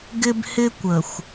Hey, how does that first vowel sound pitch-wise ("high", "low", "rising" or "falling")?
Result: high